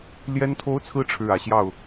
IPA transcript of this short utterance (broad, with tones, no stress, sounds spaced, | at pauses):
l j ɛ˥ n t̪ʰ o˥ ʊ̯ t͡sʰ ɹ̩˥ ʈ͡ʂʰ ɻ̩˥˩ ä˨˩ ɕ j ɑ˥˩ ʊ̯